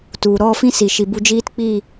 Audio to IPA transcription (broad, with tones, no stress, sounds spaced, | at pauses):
t u˨ ɾ ɔ˦˨ f ĩ˦ s i˨ ʃ i˨ b u˧ d͡ʒ iː˦ t k͡p iː˦˨